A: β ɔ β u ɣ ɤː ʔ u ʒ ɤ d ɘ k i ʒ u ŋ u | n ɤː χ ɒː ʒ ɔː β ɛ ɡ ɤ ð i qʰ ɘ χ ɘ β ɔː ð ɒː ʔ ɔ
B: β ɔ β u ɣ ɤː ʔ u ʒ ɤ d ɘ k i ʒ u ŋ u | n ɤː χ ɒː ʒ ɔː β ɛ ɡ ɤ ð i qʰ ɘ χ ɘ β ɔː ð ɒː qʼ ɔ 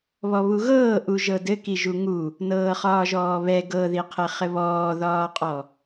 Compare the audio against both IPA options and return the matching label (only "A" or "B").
B